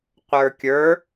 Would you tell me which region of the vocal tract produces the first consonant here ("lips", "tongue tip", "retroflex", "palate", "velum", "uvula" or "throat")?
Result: uvula